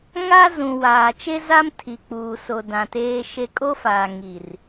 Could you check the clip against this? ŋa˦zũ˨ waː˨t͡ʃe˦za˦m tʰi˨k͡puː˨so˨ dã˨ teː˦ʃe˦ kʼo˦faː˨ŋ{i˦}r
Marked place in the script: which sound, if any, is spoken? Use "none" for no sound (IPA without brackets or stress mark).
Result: i˨